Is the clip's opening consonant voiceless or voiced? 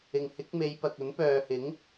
voiced